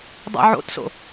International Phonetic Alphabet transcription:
dˤ o̰ ʕ o̰ t s o̰

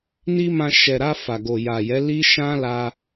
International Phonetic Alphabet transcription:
n i˦ m ã˧ ʃ ɛ˨ ɾ a˧ f a˨ ɡ o˨ j a˨ j ɛ˨˦ l i˦ ʃ ã˦ l a˧

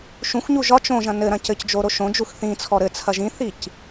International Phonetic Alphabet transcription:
ʃ ũ xʷ ɲ u ʒ ɒ t͡ʃ õ ʒ ɐ̃ n ɘ ɾ ɐ̃ c ɘ c d͡ʒ o ɾ o ʃ õ d͡ʒ u x θ ĩ t͡sʰ ɔ ɾ ɘ t͡sʰ ɐ ʒ ĩ θ i c

